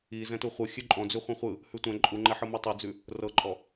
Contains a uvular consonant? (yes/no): yes